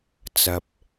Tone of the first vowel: low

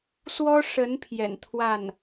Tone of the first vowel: high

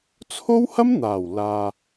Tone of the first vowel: high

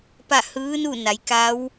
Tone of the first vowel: falling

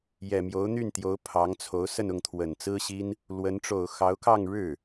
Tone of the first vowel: low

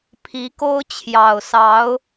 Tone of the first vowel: rising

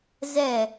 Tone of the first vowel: falling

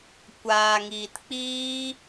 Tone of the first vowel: low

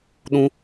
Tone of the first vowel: high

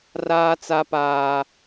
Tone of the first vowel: high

